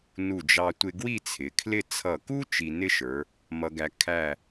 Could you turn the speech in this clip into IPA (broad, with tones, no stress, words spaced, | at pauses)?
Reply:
nu˧˩d͡ʒɑ˧tʷɪ˧ ɡwi˥˧t͡sʰɪ˩˧kʰlɪ˥˧ t͡sʰʌ˧˩ku˥ t͡ʃi˧nɪ˥ʃə˞˩˧ | mʌ˥ɡæ˥ kʰæ˥˧